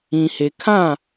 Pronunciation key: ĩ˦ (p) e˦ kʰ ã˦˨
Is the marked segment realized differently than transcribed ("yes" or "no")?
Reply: yes